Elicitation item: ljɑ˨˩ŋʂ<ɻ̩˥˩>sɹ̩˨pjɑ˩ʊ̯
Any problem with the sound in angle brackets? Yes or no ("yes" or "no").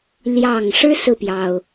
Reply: yes